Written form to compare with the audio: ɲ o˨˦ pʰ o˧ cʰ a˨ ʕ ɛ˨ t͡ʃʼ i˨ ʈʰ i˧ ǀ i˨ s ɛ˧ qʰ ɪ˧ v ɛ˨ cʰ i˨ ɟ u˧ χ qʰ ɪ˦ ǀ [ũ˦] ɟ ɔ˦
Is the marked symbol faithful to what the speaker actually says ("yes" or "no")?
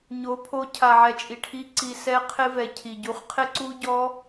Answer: no